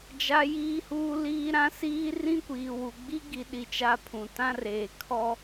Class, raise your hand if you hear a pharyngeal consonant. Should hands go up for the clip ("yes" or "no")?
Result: no